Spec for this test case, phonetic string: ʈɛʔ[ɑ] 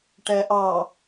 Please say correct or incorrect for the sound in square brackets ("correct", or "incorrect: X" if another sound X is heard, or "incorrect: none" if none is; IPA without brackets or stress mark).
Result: correct